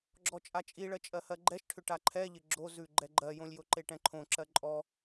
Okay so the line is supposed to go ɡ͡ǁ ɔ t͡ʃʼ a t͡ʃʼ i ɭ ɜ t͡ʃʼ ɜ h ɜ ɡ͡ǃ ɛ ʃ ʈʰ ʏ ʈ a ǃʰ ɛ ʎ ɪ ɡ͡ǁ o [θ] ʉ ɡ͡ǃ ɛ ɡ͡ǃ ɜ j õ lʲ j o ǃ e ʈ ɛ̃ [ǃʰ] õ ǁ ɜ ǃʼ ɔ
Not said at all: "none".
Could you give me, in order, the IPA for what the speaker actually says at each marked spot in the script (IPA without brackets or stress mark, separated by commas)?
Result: z, ǃʰ